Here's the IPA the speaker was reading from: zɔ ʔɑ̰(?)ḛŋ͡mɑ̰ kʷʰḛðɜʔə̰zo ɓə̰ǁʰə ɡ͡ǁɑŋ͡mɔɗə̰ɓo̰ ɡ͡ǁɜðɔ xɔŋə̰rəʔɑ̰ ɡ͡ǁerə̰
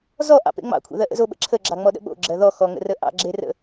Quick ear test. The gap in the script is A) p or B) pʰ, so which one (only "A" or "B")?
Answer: A